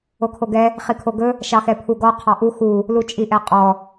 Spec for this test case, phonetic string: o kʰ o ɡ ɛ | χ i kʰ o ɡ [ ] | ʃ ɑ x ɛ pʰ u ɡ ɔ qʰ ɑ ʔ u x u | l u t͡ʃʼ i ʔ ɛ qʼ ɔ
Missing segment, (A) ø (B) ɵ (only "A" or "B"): B